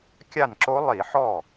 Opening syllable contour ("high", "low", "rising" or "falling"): falling